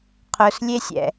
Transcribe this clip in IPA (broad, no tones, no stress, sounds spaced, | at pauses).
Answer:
qʰ ʊ s lʲ e sʲ ɛ̰